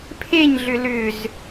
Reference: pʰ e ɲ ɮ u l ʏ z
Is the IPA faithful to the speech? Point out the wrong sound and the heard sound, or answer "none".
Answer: u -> ʏ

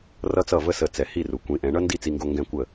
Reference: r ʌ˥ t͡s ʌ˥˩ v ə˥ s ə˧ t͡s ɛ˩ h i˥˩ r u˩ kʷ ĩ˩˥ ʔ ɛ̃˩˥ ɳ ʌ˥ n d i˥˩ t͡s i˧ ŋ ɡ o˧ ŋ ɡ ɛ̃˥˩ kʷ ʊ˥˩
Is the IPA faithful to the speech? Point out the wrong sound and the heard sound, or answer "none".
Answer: ʊ˥˩ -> ə˥˩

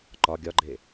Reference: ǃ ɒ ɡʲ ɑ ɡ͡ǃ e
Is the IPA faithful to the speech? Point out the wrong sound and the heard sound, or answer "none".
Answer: ɑ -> ɒ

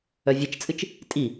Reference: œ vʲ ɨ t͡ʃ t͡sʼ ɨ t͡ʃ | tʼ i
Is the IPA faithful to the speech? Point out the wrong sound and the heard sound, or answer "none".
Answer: none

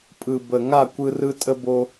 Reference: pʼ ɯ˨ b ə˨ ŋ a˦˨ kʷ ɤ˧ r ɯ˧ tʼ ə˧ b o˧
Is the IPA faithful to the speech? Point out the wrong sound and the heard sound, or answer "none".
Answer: ɤ˧ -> ɯ˧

